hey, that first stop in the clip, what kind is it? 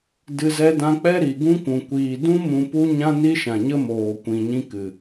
plain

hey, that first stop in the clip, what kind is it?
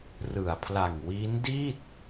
aspirated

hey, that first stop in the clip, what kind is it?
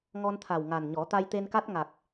aspirated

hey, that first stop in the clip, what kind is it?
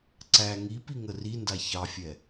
click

